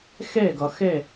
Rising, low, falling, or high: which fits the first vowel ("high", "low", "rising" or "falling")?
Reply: falling